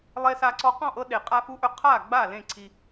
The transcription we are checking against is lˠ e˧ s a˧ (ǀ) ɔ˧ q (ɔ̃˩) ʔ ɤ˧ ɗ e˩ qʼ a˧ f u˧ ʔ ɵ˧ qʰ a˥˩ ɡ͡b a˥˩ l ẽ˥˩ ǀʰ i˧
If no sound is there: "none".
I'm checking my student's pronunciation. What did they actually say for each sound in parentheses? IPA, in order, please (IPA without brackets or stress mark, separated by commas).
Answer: ǀ, ɔ̃˥˩